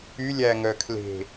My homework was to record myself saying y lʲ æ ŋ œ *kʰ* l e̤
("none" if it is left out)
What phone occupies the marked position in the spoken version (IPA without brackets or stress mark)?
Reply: kʰ